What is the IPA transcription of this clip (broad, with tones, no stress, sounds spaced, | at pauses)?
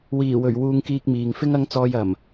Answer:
w iː˨˩ w ɵ˨˩ ɥ w uː˧ ŋ k iː˧ k̚ m iː˨ ŋ f ɪ˥ ŋ ɐ˨˧ ŋ t͡s ɔː˨ j ɐ˨˩ m